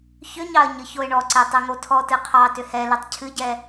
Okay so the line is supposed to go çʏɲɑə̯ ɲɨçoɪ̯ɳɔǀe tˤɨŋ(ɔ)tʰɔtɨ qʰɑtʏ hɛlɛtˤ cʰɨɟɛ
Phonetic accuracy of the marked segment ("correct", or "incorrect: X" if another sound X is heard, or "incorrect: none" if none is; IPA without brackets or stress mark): incorrect: o